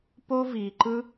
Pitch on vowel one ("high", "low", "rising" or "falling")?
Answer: high